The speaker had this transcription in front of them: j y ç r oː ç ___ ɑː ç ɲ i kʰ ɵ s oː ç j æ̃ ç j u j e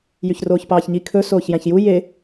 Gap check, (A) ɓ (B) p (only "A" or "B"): B